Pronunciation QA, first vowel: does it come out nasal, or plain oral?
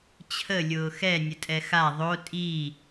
oral